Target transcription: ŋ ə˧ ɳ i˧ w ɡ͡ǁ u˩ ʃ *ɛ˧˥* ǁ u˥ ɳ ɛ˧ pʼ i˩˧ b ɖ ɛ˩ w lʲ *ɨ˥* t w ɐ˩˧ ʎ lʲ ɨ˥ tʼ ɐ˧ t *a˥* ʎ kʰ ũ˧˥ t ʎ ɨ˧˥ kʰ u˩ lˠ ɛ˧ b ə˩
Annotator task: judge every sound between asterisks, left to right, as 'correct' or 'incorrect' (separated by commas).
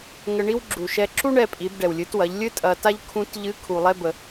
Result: incorrect, incorrect, correct